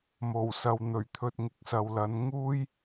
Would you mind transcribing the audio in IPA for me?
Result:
m o˨˩ w s ɐ˨ w n̪ ɵ˨˩ ɥ t̪ʰ ɵ˨ t̚ ŋ ɪ˨ k̚ s ɐ˨ w l ɐ˨˥ n ŋ uː˥ j

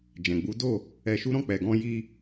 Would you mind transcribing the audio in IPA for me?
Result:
d͡ʒ ɛ̃˨ ɡ͡b u˨˦ d o˦˨ | ɛ˧ ʃ u˦ ɾ ɔ̃˦˨ k͡p ɛ˨ ɡ ɔ̃˧ j i˧

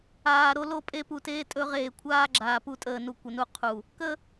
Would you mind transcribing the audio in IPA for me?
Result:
aː˨ ɾ o˦ l o˦˨ pʼ e˦ p u˨ t eː˦ tʼ ɵ˦ ʁ eː˨ kʷʰ aː˦ ɡ͡ǁ aː˨ p u˦ tʼ əː˨ n u˨ kʷ ə˨ n u˦˨ qʰ u˨ | k ə˦

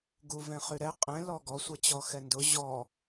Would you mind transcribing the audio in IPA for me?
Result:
ɡ u v ɛ̃ χ y ɾ ɛ qʼ ɛ̃ l ɔ ɡ ɔ sʷ ɛ t͡ɕ ɔ x ɛ n d ʊ ʑ ɔ

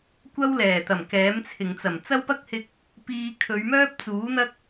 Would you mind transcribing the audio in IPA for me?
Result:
kʷ ɐ˥ w l ɛː˨˩ t̪ ɐ˨˩ m k ɛː˨˥ m t͡sʰ ɪ˨ ŋ t͡s ɐ˨˩ m t͡s ɐ˥ w p ɐ˥ k̚ h ɪ˧ k̚ | p iː˧ kʰ ɵ˨˧ ɥ m œː˥ p̚ t͡s uː˨˥ n̪ ɐ˥ k̚

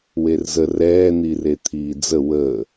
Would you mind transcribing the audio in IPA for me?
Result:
w e r z ə r ɛː n̪ i r e t̪ʰ iː d͡z ə w ə

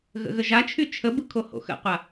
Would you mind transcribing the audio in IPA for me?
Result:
ɣ ə̰ ɣ ə ʒ a t͡ʃʰ y t͡ʃʰ ə b ɯ kʰ o h o̰ x ə̰ qʷ a

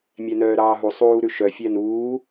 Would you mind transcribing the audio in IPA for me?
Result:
mʲ æ n œː ɾ ɑː ɦ u sˤ uː ɾ ʉ ʃ œ fʲ æ n uː

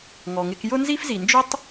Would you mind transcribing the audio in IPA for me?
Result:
ŋ ɔ˩ ŋ ɪ˧ k j ʊ˥ n z i˥ f z i˩ n d͡ʒ ʊ˥ tˤ

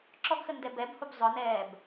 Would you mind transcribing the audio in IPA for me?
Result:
ǁ ɔ ɡ x ə n d ɛ b ɛ b h u b zˤ ʊ n ɛː b

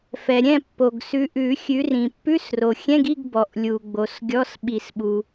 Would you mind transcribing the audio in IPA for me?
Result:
f ɛ˩ ɾʲ ɛ̃˥˨ pː o˩ ɡ s ʉ˨˦ ʔ ʉ˨˩˦ xʲ ʉ˨˦ r ĩ˩ pː ʉ˧˥˧ s r o˩ xʲ ɛ̃˧˥˧ ɡ i˧˥˧ ɡ b ɔ˩ ʔ lʲ u˩ ɡ͡b o˩ s ɡʲ ɔ˧˥˧ s ɓ i˨˩˦ s ɓ u˩

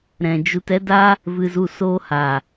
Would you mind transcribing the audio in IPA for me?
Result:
ɾ ɛ̃˧ d͡ʒ u˧ t ɛ˦ d a˦ | v ɨ˧ z u˧ s oː˧ h a˨

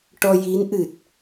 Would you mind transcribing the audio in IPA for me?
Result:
ʈ ɔ˧ j i˧˥ n ʔ ɨ˨˩ t̚

